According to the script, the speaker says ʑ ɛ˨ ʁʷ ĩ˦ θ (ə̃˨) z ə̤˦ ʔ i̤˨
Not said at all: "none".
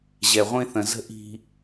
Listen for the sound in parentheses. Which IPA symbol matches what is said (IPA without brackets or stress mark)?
ə̃˨